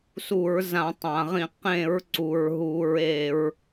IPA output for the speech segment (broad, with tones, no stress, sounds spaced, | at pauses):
s u˧˩˧ ɹ z ã˧˩˧ tˤ ã˩ ʁ ĩ˧˩˧ q ẽ˧˩˧ ɹ ǀ u˩ ɹ ɦ u˧˩˧ ɹ e˧˩˧ ɹ